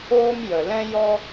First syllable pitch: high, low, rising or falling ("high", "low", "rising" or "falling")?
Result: high